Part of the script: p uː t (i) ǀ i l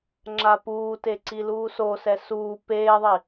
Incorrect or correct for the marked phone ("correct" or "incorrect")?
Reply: incorrect